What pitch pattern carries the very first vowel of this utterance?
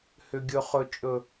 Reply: low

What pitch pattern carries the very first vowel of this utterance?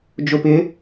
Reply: low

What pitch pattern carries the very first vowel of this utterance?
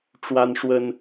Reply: high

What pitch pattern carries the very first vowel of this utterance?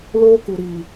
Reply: high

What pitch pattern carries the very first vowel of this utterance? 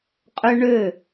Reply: high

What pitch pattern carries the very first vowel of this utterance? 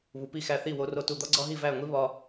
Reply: low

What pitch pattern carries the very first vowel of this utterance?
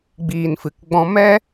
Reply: low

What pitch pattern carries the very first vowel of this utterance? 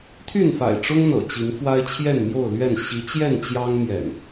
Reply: falling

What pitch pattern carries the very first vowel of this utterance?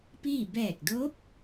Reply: falling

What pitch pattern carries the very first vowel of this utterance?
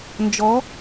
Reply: rising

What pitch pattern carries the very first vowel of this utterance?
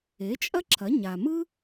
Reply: rising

